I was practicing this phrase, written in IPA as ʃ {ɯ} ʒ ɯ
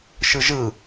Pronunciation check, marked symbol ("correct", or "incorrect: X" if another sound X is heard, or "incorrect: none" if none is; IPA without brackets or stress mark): correct